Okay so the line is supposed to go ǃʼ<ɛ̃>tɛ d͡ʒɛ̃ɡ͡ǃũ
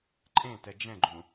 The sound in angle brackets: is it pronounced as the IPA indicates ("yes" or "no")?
no